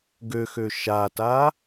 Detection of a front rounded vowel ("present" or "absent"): present